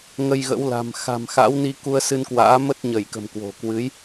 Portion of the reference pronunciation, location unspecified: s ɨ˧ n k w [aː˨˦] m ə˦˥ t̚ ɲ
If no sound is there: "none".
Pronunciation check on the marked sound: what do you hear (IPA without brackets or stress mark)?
a̰ː˧˥